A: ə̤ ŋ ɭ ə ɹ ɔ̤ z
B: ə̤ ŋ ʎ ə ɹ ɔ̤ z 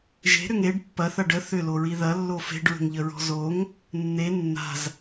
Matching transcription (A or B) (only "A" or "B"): B